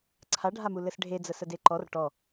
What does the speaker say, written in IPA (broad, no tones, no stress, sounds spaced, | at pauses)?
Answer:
ǀʰ a ɖʱ a m u l ɘ s ɖʱ e d͡z ə s ə d e ǃ ɔ r ʈ ɔ